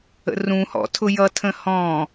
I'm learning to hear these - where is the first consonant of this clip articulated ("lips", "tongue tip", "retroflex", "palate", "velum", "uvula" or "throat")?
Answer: tongue tip